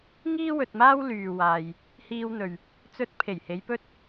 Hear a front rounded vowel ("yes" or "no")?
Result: yes